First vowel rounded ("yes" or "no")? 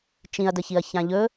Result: no